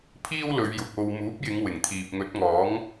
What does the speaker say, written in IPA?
pʰ iː˥ w l ɵ˨˧ ɥ j ʊ˨ k̚ o˧ w m uː˨˥ p̚ j ɪ˨˧ ŋ w ɪ˨˩ ŋ t̪ʰ iː˨ p̚ ŋ ɵ˨˥ t̚ ŋ ɔː˨˥ ŋ

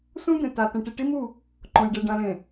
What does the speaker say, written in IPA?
s ũ˦ d̪ ẽ˨ t a˨ t ɛ̃˨ ʈ i˨ ʈ i˦ m u˦˨ | ǃ õ˨ j ɖ e˨ ɖ ã˨ l ẽ˨

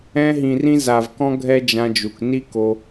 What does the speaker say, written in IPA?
ɛ̃˧ ɦ ĩ˨ r ĩ˧ z a˨ v k ɔ̃˦ ɡʱ ɛ˦ d͡ʒ ã˧ d͡ʒ u˨ k n i˦ k o˧

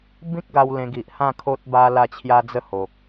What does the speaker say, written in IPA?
b ĩ˦ k̚ ɡ a˧ w l ẽ˧ ɡ i˨ ʔ h ã˥˧ kʰ o˦ t̚ b a˦ l a˥˧ t͡ɕʰ j a˦ d͡z ə˥˧ h o˨ k̚

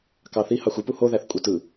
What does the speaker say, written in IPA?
k ɑ θ i h ɑ xʷ ɯ p u h o ð æ θ kʷʼ ɯ t ɯ

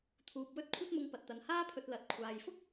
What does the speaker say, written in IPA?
t̪ʰ uː˨ p̚ w ɵ˧ t̚ kʷʰ ɐ˧ t̚ m ʊ˨ ŋ p ɐ˨ t̚ t̪ ɐ˨ n h aː˥ pʰ ɵ˧ t̚ l ɐ˨ t̚ kʷʰ aː˨ j f ʊ˥ k̚

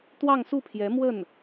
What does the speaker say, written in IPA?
t̪ w ɑ˥˧ ŋ s u˥˩ pʰ j ɛ˧˥ m w ə˥˩ n

